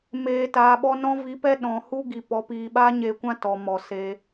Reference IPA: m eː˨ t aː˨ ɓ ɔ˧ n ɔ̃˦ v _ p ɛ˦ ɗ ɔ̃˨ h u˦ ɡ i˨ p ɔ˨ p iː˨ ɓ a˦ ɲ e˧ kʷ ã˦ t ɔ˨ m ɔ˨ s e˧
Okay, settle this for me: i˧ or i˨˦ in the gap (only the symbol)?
i˨˦